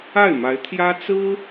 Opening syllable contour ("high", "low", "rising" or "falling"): falling